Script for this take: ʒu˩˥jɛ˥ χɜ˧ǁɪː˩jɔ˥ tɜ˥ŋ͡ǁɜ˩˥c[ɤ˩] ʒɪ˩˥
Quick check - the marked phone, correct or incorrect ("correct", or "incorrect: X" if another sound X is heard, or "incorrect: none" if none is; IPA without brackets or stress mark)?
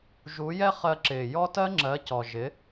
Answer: incorrect: ɔ˩